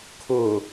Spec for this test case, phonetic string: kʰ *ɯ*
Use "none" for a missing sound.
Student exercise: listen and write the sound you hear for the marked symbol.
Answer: ʊ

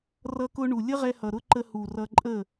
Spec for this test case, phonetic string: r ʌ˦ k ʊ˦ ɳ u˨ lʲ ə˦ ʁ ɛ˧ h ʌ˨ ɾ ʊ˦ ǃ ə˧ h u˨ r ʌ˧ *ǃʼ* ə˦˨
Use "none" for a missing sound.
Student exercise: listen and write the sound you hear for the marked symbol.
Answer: ǃʼ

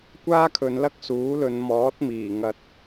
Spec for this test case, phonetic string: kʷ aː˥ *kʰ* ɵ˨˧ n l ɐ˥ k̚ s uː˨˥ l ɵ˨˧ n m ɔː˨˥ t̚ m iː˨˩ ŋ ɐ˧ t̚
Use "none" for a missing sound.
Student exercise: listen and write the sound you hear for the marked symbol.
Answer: kʰ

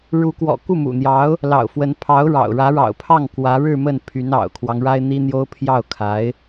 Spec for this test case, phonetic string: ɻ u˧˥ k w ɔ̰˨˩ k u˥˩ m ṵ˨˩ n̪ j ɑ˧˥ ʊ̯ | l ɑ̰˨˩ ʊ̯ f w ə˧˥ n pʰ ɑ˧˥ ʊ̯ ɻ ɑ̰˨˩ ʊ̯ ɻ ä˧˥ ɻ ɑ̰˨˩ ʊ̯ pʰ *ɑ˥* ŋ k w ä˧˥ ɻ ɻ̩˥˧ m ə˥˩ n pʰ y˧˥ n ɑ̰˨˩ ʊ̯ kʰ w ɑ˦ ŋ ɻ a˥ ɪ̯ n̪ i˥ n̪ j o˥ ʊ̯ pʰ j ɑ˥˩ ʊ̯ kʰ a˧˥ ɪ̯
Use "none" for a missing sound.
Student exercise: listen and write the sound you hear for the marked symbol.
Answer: ɑ˥˩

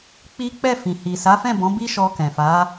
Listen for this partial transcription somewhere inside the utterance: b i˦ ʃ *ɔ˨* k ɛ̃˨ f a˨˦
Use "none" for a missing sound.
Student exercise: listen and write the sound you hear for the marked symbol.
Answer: ɔ˧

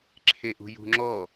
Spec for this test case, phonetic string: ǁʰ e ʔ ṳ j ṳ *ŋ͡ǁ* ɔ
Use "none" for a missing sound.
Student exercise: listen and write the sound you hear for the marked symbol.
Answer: ŋ͡ǁ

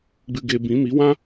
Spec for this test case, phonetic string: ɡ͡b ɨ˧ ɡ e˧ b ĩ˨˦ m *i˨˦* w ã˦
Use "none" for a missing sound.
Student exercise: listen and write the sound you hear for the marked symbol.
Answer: i˨˦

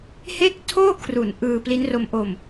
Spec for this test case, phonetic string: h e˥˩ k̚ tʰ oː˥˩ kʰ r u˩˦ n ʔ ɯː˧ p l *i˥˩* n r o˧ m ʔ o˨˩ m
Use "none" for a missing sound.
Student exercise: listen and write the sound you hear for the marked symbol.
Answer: i˦˥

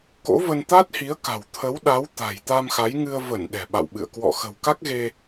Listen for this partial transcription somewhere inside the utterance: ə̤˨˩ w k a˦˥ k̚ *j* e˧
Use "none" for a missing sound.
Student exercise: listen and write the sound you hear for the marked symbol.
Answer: ɣ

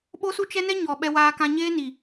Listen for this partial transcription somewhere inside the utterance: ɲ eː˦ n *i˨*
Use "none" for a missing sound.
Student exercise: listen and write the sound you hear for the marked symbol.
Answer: i˨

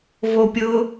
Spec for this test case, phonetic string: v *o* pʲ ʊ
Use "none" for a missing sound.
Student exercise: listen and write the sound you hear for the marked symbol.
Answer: o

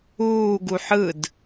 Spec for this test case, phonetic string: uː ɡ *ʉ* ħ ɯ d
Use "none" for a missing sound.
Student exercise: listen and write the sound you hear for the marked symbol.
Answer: u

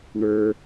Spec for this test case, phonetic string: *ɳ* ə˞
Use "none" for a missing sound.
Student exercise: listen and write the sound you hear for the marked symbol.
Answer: ɳ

